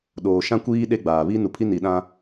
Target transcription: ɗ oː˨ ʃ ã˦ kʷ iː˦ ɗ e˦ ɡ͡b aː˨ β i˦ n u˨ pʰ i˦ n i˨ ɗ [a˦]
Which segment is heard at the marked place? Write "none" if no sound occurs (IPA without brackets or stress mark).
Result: ã˦